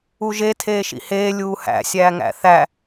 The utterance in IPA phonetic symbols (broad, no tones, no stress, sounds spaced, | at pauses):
u ʒ e tʰ eː ʃ ḭ h eː lʲ uː h æ̰ sʲ æː ŋ æ̰ θ æ